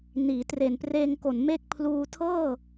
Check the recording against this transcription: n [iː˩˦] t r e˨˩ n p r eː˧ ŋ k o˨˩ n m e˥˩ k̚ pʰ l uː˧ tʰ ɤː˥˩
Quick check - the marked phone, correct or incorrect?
correct